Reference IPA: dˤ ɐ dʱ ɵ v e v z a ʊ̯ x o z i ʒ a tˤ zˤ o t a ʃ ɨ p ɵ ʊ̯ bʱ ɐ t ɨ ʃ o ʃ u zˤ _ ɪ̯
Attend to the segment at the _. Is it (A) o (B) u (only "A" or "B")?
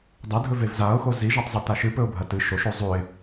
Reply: B